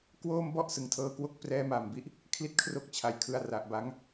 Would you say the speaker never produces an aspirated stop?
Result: no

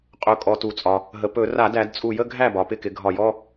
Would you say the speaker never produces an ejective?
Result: no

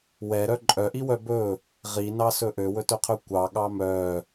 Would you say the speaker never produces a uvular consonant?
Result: no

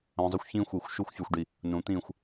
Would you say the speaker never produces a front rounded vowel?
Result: no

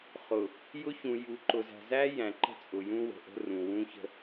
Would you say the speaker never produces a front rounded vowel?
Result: yes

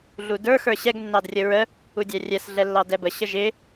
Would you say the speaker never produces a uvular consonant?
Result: yes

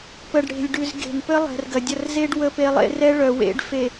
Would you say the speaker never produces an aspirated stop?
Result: yes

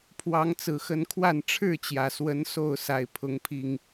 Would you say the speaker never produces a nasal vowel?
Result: yes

